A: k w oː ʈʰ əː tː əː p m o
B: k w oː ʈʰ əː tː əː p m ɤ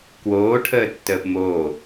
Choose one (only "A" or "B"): A